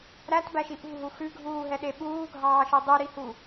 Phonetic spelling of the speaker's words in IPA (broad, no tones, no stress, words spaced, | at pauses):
ɾætbæʃi ʔṳɦu xʉɡʱuːɦɛɗe ɓuːɡʱɑːʃø dˤyɾihu